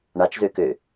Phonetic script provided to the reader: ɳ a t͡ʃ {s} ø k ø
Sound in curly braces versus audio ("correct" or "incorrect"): incorrect